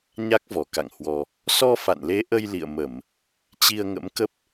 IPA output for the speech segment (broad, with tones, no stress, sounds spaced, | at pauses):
ɲ a˦˥ k̚ v ɔ˧˩ k a̰˧˨ ŋ h w ɔ˧ | s ɔ˧ f a̰˧˨ n l e˨˦ ʔ ə˧ j l ḭ˧˨ ə̯ m ə˧˩˨ m | t͡ɕ i˧ ə̯ ŋ ə̰˧˥ m k ə˦˥ p̚